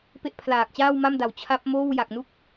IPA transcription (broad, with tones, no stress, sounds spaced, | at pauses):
p e˥˩ ʔ pʰ l aː˨˩ k̚ t͡ɕ aː˥˩ w m a˥˩ m d a˨˩ w t͡ɕʰ a˦˥ p̚ m oː˥˩ w j a˨˩ k̚ n u˥˩ k̚